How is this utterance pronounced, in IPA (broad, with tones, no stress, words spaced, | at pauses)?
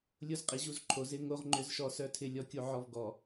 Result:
lʲo˦zqʼi˨ʑu˦zǃʰo˨ zɪ˦ ŋo˦ʁ ŋ͡ǃʏ˦zʃɔ˦sœ˦tʰɪ˦ lʲɔ˦kʲo˦ʕɔ˦v ɡɔ˨